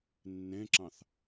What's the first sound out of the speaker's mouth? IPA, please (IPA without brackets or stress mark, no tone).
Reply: nː